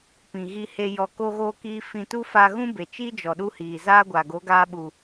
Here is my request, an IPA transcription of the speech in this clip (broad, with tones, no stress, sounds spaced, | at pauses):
p ĩ˨ ɣ i˧ h e˧ j ɔ˧ k o˦ ɣ oː˦ k iː˦ f ĩ˧ t u˦ f aː˧ ɣ ũ˦ b e˨ t͡ʃ iː˦ d͡ʒ ɔ˨ ɗ u˧ h iː˨ z aː˦ ɡʷ a˨ ɡ o˨˦ ɡ aː˧ ɓ u˨